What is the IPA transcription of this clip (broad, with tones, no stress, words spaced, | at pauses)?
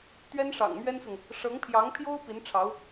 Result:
t̪ɥɛ˥nʂɑ̰˨˩ŋmɥɛ˥nsʊ˨ŋ | ʂɤ˧˥ŋpʰjɑ˧˥ŋpʰjo˥ʊ̯ pi˧˥nʈ͡ʂʰɑ˧˥ʊ̯